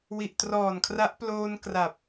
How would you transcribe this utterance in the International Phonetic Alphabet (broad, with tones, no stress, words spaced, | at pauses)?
wi˨˩ʔtrɔː˨˩nkʰra˦˥ʔ ploː˧n kra˨˩p̚